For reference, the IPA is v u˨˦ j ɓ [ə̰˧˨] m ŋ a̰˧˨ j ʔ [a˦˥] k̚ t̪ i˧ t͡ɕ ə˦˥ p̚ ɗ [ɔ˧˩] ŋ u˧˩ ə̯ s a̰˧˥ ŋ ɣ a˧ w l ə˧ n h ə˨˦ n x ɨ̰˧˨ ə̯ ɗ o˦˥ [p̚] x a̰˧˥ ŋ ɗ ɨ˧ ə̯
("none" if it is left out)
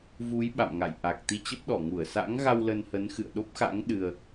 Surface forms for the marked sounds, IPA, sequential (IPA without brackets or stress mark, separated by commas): a̰˧˨, a˨˩, ɔ˧˩, p̚